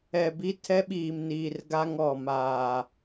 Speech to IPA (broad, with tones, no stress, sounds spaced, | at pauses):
ɛ˨ b i˦ tʰ ɛ˦ ɓ iː˨ m n iː˨ r ɡ a˦ ŋ ɔ˨ m aː˨